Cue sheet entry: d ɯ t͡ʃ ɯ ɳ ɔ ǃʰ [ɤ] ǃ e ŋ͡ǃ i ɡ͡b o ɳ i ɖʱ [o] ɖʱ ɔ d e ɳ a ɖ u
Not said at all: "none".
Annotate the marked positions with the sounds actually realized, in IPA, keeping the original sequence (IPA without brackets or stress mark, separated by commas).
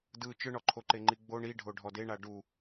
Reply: o, o